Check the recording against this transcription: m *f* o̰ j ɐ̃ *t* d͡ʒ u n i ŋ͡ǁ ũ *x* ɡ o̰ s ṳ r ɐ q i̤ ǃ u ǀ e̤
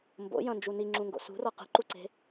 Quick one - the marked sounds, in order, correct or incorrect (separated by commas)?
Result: incorrect, incorrect, incorrect